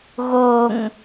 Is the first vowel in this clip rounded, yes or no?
yes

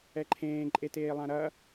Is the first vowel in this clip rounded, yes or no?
no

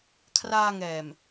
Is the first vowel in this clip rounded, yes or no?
no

